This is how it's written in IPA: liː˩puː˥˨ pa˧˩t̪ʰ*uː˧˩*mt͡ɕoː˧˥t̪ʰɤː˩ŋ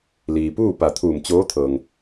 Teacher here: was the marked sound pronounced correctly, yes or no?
yes